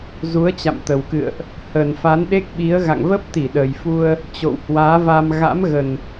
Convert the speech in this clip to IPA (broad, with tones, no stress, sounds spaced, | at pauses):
z u˨˦ ə̯ t͡ɕ a̰˧˨ m t̪ ə˨˩ w k ɨ̰˧˨ ə̯ ʔ | h ə˨˩ n f a˨˦ n ɗ e˦˥ k̚ ɓ i˨˦ ə̯ ɣ a̰˧˨ ŋ v ə˦˥ p̚ t̪ i˧˩ ɗ əː˨˩ j f u˧ ə̯ | t͡ɕ o̰˧˨ w h w aː˨˦ v a˧ m ɣ a̰˧˥ m ɣ ə˨˩ n